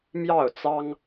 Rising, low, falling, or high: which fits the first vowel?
falling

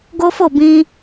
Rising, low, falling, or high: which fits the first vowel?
high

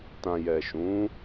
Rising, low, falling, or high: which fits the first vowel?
low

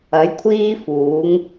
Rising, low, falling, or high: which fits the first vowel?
rising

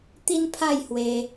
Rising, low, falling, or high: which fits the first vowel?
high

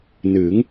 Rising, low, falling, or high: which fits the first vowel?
rising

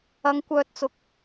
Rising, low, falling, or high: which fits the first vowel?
high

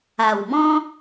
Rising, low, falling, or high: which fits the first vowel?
low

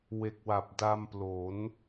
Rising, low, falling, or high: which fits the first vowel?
low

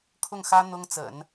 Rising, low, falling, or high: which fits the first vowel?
falling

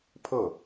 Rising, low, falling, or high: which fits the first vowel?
falling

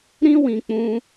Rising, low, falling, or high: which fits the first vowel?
high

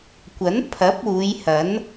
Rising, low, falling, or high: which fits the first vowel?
rising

